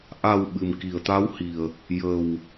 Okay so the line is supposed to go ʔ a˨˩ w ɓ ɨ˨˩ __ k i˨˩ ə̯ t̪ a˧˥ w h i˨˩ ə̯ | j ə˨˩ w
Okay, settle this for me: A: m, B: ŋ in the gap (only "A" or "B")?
A